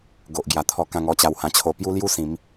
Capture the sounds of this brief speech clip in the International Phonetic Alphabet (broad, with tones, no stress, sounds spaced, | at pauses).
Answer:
ɡ o˨ ʔ ɡ j a˨˩ t̪ʰ ɔ˧ k ã˧ ŋ ɔ˦ t͡ɕ a˧ w h ã˧ t͡ɕʰ o˧ p j u˦ l j u˥˧ s ĩ˨˦ m